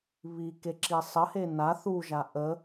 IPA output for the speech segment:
β i k e ǁ i sˤ ə h e n a θ u ʒ a ʔ ə

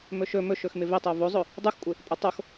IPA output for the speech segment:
m ɵ ʃ ɵ m ɵ ʃ ɵ x m ɪ v ɪ tˤ o v o zˤ ɵ | dˤ u x kʷʼ ɪ | pʼ o tˤ o x

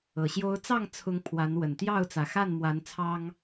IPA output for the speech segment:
ɤ˨˩ ɕ j o˦ ʊ̯ t͡s ɑ˥˨ ŋ t͡sʰ ʊ˨˦ ŋ pʰ w a˨˦ n w ə˨˩ n t̪ j ɑ˥˨ ʊ̯ t͡s ä˨˩ x a˥˨ n m w a˨˦ n t͡sʰ ɑ˦ ŋ

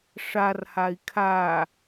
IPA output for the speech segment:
ʂ a r h a i̯ kʰ a

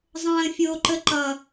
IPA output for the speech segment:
zˤ ə̃ː fʲ oː ǃ ə ǃ ʌ

